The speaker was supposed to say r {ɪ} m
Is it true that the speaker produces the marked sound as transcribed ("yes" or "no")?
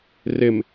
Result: yes